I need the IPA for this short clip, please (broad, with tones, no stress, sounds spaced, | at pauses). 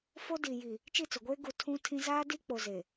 f o˦ d i˨ j i˨ | t͡ʃ i˦˨ t͡s o˨ ɡʷ eː˦ ɡ u˨ tʰ ũ˦ tʰ ĩ˦ z aː˦ d i˦ k͡p o˨ z e˨